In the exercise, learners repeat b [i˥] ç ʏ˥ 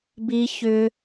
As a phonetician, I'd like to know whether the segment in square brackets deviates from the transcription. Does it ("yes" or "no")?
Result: no